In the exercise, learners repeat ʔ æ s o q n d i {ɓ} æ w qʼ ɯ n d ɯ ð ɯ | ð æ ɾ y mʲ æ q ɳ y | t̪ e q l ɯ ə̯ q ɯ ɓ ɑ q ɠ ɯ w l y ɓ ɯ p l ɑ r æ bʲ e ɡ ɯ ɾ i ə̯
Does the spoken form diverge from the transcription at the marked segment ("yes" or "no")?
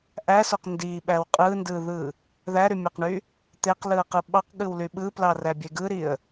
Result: no